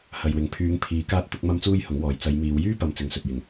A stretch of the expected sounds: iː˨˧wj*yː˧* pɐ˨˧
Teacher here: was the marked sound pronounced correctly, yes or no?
no